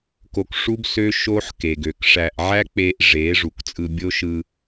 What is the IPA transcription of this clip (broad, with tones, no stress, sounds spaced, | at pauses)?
k o˧ k ʂ u˦ b s ø˦ ʃ o˦ ħ k e˨ ɡ ø˨ k ʂ æ˧ ʔ ʕ æ˦ k͡p e˧ ʔ ʐ e˨˦ ʐ u˨ k t͡sʼ ɯ˧ bʲ o˦ ʃ ɯ˧